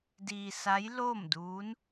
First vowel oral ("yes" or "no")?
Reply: yes